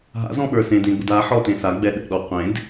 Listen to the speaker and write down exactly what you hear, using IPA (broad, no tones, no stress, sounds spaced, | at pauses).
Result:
ɦ a̰ z ɔ̃ ɓ ə˞ s ẽ d ẽ ɡ͡b ʊ d a ħ ɔ t ẽ s a ɡ͡b ɛ ɗ ɛ̰ ɗ ɔ qʷ ẽ d